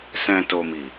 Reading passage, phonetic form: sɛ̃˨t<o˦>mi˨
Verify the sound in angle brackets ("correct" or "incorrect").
incorrect